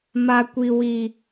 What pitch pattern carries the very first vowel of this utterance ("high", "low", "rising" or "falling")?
high